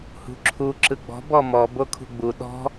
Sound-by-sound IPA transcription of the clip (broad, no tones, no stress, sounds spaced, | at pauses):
h ṳ ǁʰ u ǁ ɯ ɡ͡b ɔ̤ b ɔ m ɔ b o kʰ ṳ ɡ͡b u ɗ ɔ̤